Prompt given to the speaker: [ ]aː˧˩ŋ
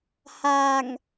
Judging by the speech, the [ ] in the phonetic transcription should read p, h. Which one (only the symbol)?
h